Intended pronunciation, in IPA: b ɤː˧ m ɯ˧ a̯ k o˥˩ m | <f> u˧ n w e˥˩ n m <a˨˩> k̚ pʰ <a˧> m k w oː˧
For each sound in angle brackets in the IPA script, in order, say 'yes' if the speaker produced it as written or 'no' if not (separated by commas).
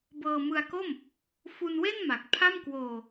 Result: yes, yes, no